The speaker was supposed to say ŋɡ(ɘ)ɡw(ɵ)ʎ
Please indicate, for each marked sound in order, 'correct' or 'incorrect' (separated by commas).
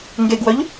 incorrect, incorrect